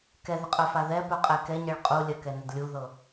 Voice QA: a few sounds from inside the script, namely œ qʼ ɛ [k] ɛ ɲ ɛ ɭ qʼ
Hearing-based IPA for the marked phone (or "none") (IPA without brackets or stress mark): k